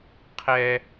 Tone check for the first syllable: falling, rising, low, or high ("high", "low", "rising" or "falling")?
high